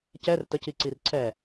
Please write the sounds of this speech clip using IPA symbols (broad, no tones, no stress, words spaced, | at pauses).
cɛr təc iǀirǀʰɛ